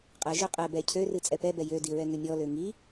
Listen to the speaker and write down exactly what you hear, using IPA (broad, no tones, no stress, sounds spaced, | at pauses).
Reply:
qʼ ɛ ʒ ø qʼ ɛ b ɛ cʰ ø r ɨ t͡sʼ ɛ p ɛ b ɛ j ø d i ɹ ɛ ŋ ø mʲ ɔ l ø ŋ i